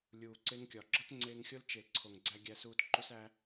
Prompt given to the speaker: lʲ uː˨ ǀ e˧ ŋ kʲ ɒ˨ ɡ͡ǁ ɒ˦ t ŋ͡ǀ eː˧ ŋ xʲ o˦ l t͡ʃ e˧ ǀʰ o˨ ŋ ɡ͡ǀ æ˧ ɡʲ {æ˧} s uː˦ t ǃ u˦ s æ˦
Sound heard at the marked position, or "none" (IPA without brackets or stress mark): æ˦